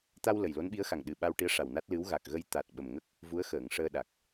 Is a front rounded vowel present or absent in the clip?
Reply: absent